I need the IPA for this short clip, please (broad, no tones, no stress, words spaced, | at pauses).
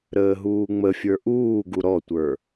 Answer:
ɾəːɦuːŋ͡məfʲə˞ ʔuːɡu ɾɔtʷə˞